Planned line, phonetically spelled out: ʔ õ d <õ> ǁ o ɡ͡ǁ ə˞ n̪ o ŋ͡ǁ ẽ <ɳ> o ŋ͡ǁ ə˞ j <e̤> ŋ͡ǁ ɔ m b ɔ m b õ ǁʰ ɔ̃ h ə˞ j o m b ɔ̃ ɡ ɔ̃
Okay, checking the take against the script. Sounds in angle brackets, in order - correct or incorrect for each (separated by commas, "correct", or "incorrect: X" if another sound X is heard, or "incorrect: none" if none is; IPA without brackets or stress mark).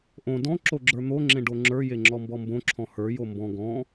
incorrect: ɔ̃, incorrect: ɖ, incorrect: e